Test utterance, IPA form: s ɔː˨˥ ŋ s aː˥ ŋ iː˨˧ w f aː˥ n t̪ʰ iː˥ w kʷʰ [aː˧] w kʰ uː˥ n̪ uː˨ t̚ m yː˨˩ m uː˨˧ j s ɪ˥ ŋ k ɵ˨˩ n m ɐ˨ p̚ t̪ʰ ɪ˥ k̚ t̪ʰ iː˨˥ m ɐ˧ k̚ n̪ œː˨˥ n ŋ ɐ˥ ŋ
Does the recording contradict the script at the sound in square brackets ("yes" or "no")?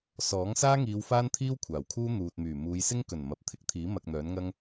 yes